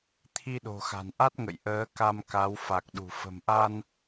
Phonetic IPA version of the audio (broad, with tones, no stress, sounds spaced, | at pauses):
t̪ʰ i˧ ɗ o̤˨˩ x a̤˨˩ n ʔ a˦˥ t̚ ŋ ə̰˧˨ j ʔ əː˨˦ k a˧ m k a˨˦ w f a˨˩ k̚ ɗ ṳ˨˩ f ə̤˨˩ m ʔ a˧ n